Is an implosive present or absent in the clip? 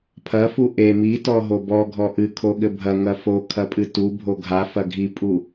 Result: present